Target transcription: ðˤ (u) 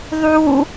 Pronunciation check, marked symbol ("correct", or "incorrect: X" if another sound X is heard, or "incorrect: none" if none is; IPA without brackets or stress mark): correct